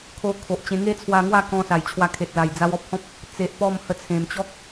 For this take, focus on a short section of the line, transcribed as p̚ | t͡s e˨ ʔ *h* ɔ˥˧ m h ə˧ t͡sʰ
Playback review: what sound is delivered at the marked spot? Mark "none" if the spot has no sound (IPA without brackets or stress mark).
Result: p